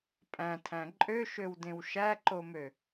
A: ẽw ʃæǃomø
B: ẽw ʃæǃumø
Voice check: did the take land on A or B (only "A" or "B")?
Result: A